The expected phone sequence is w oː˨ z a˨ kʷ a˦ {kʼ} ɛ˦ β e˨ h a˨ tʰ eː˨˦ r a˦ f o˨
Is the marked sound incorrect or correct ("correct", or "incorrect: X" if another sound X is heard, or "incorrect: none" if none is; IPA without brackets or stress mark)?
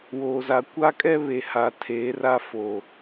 correct